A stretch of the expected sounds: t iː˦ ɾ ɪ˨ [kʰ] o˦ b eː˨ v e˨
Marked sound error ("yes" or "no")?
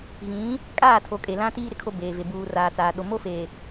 no